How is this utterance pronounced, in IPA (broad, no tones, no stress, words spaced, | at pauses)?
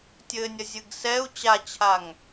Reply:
tʲɘnʲɐzʲɨɡ sɛu̯ t͡ɕat͡ɕʰaŋ